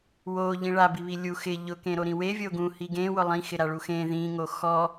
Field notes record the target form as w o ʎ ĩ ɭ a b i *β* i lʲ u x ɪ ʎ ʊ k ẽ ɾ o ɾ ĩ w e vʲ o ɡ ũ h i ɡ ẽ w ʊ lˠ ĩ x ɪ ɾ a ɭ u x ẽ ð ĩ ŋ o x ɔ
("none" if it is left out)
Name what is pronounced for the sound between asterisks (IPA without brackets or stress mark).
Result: β